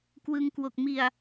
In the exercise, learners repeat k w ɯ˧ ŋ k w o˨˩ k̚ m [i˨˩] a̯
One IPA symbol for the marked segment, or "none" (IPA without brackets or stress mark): i˨˩